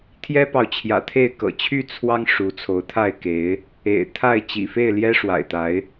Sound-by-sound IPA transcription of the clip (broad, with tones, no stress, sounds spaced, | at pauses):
t̪ʰ j ɛ˦ p ɑ˨ ʊ̯ t͡ɕʰ j ä̰˨˩ t̪ʰ e˥˨ ɪ̯ k ɤ̰˨˩ t͡ɕʰ y˥˨ t͡sʰ w ɑ˦ ŋ ʂ u˨˦ t͡sʰ o˨˦ ʊ̯ t̪ʰ a˥˨ ɪ̯ k e˨˦ ɪ̯ | ḛ˨˩ ɪ̯ t̪ʰ a˥˨ ɪ̯ t͡ɕ ḭ˨˩ f e˥˨ ɪ̯ l j ɛ˦ ʂ w a̰˨˩ ɪ̯ t̪ a˨˦ ɪ̯